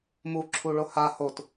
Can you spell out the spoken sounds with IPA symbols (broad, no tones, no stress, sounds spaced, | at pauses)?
m u ǁʰ u ɭ o h a h o t